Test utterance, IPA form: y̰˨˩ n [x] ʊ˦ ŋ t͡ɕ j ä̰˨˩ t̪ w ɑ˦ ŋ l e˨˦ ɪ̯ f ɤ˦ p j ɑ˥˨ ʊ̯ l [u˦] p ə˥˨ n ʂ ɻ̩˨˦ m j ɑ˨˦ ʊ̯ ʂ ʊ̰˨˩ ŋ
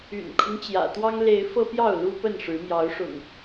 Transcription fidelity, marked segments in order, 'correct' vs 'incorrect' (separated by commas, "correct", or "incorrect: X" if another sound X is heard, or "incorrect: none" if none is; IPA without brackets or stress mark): incorrect: kʰ, correct